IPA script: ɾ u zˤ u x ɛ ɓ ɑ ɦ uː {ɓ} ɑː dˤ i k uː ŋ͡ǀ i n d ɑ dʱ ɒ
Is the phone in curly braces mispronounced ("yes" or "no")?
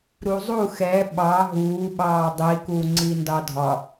no